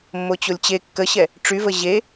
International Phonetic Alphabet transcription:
mː o t͡ɕ o lʲ t͡ɕ e kː ə ɕ ɛ | ʈ͡ʂ y v ə ʑ e

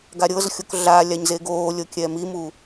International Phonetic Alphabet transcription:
ɡ a ɾʲ ɤ z xʲ o k ɮ a lʲ a ɲ z e ɡ oː lʲ ɤ kʲ ɛ m i m u

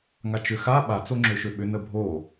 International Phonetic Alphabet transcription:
ŋ a t͡ʃ ʏ x a ɓ a t͡s o ŋ͡ǁ ø ʃ ø ɓ ʏ n ə bʱ o

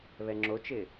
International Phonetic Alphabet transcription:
β ɛ ŋ͡ǁ o t͡ʃ ɪː

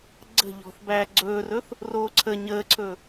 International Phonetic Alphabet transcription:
ɡ͡ǀ ə̤ ʎ ɔ̤ θ b æː ɡ͡ǀ ɵː r ɵ θ | r oː ǀʰ ə ɲ əː ǀʰ ɵ

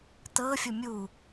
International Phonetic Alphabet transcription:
t ɤ fʲ o mʲ u

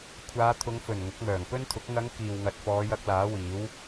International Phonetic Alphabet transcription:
kʷʰ aː˨˧ t̪ʰ ʊ˨˧ ŋ f ɵ˨˩ n ŋ ʊ˨˥ k̚ m œː˨˩ ŋ p ɵ˥ n t̪ʰ ʊ˨˥ k̚ ŋ ɐ˨˧ ŋ k iː˨ w ŋ ɐ˨ t̚ f ɔː˨˧ j ɐ˨˥ k̚ l aː˨˥ w iː˨˥ w

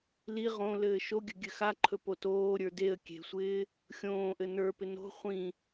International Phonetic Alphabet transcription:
l i ʁ õ l ɘː ʃ o ɡʲ ə ɡʲ ɘ x a ǃʰ ɵ p o t oː ɾʲ ə˞ d e ə̯ kʲ e̤ sʷ ɪː | xʲ õː ʔ ɘ n ə˞ p ɪ n o̤ χʷ ĩ

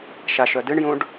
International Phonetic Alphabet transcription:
ʃ a ʃ œ d ɨ ɳ j ũ ɖ

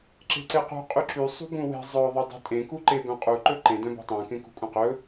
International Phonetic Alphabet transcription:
ǁ e̤ ǀ e q ṳ qʼ y ǁ y sˤ ṳ b ũ w e̤ zˤ œ ðˤ œ dˤ e̤ tʼ ẽ k u ǃ e b œ̃ qʼ u ǃ ɵ ǃ ẽ d œ̃ b ṳ tˤ ẽ k ẽ k ṳ kʼ ũ q ɵ

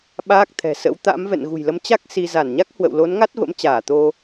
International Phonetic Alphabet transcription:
ɓ aː˦˥ k̚ t̪ʰ ɛ̤˨˩ s ə̰˧˥ w t̪ a̰˧˥ m v ɛ̰˧˨ n ɣ ṳ˨˩ j l ə˨˦ m t͡ɕ a˦˥ k̚ s i˧ z a˧˩ n ɲ a˦˥ k̚ h w ə̰˧˨ w l o˨˦ n ŋ a˦˥ t̚ v ə̰˧˥ m t͡ɕ aː˧˩ t̪ o˧

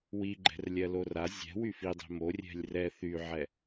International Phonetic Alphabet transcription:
w i ɡ͡ǃ ɛ̤ r lʲ ɜ l o r a zʲ ɛ̤ w y f i dˤ ɛ̤ m o rʲ ɛ̤ lʲ r ɛ θ y ʕ ɛ

